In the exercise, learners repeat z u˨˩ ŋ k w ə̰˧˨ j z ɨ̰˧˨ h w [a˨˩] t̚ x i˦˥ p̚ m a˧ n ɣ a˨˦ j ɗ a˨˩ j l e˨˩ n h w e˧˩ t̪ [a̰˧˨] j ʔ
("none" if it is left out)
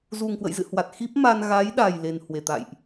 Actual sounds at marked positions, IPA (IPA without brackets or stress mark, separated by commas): a˨˩, a̰˧˨